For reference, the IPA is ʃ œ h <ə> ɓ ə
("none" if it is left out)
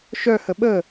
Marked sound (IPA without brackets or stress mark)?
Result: ə